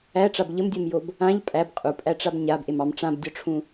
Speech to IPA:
æ ʈ͡ʂ a b ʎ ə m dʲ ɘ m j o b | ã ʎ pʼ æ b qʼ u pʼ æ ʈ͡ʂ a b ɲ a b ʔ e m ɑ m ʈ͡ʂ ã b dʲ ɔ ʈ͡ʂʰ ũ

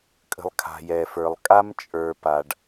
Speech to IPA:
kʼ ə̤˨ lˠ kʰ a̤˨ j ɛ˨ f ə˞˨ lˠ kʼ a˦ m t͡ʃʼ ə˞˨ p a˨ ɖ

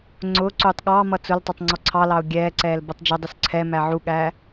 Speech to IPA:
ŋ͡ǀ ʊː ǀ uː tˤ ɠ ɑ m ʌ t͡s ʊ l tˤ ʌ tˤ ŋ͡ǀ ɔ ǀʰ ɑ l ɑ ʊ̯ ɡʲ ɛː ǀ ɛː l b ʌ tˤ d͡ʒ ʊ dˤ u s ǀʰ ɛ m æ ʕ u ɠ æ

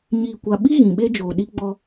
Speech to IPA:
ɲ iː˨ kʷ a˨ ɓ i˦ ɣ ĩ˨ ɓ e˦ d͡ʒ oː˨ ɗ i˦ ɡ͡b ɔ˦

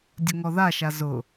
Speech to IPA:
dʲ ʊ ŋ ɔ ð a ʃ a z ʊ

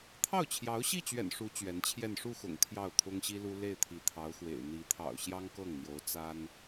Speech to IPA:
t̪ʰ ɑ˥˩ ʊ̯ t͡ɕʰ j ɑ˧˥ ʊ̯ ɕ i˥˩ t͡ɕ ɥ ɛ̰˨˩ n ʂ u˧˥ t͡ɕ ɥ ɛ˧˥ n t͡ɕʰ j ɛ˥˧ n ʂ u˥˩ x ʊ̰˨˩ ŋ t̪ʰ j ɑ˥˩ ʊ̯ t̪ʰ ʊ˥ ŋ ɕ i˥ l u˥ l e˥˩ ɪ̯ t̪ʰ i˧˥ t̪ʰ ɑ˧˥ ʊ̯ x w ḛ˨˩ ɪ̯ n̪ i˧˥ t̪ʰ ɑ̰˨˩ ʊ̯ ɕ j ɑ˥ ŋ k ɤ˥˩ ŋ n̪ j o˧˥ ʊ̯ t͡s a˥ n

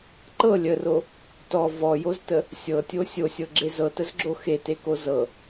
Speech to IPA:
ǃ ɤ lʲ ə r o | t ɔ v ɔ j o z t ə | sʲ ɤ tʲ o sʲ o sʲ ɤ ɡ͡ǁ e z ɤ t ə z ɡ͡ǁ o x e t e k o z ɤ

